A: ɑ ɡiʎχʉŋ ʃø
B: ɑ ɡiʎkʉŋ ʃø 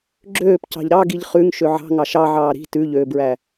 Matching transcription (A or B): A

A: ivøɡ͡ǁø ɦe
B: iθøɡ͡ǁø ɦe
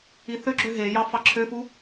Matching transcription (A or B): B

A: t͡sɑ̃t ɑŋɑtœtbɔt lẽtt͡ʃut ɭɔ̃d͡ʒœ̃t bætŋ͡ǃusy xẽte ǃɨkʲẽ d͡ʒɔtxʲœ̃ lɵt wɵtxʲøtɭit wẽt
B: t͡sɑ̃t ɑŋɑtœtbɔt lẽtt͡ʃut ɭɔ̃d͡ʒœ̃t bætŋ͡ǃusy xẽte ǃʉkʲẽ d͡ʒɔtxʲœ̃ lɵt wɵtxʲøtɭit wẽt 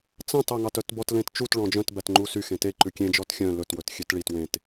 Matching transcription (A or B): B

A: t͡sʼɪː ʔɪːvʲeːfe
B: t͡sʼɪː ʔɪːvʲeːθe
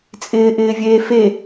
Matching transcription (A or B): A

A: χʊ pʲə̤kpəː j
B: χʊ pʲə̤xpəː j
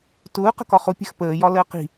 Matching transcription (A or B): B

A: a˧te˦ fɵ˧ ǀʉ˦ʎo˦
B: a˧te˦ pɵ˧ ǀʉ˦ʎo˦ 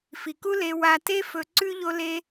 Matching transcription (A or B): A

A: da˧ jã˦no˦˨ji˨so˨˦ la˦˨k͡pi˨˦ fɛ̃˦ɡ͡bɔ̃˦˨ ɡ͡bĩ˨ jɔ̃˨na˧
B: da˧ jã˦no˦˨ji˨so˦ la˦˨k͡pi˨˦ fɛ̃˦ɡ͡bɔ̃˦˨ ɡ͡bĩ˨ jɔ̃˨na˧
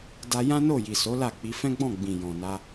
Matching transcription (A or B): A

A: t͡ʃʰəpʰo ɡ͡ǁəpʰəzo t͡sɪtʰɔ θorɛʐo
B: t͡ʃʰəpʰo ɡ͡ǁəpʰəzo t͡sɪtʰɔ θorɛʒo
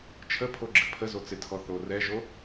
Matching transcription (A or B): B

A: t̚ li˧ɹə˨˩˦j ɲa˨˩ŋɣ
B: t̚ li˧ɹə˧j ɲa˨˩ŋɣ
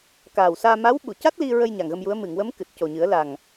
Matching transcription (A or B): B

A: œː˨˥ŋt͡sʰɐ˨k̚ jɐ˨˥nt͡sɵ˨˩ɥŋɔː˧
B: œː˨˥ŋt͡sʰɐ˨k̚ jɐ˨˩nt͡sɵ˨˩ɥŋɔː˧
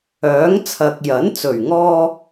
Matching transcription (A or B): A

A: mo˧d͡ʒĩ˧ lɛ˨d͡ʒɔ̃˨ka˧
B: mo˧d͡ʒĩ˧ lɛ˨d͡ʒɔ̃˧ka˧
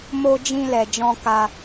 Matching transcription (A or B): B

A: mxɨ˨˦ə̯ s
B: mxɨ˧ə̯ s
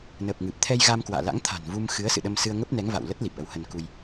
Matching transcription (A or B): A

